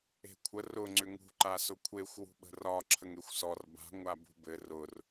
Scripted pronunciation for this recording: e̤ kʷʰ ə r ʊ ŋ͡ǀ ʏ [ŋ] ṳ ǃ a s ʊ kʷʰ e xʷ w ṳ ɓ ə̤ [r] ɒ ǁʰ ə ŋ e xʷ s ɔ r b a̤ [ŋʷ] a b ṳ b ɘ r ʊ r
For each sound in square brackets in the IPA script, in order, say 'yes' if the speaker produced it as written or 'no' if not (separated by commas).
yes, yes, yes